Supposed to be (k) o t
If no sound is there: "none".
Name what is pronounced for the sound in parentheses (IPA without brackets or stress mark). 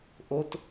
ʔ